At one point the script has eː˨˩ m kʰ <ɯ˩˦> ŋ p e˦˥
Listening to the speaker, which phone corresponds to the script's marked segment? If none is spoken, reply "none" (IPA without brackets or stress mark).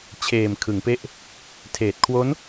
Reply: ɯ˩˦